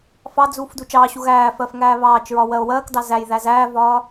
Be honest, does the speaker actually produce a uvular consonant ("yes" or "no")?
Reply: no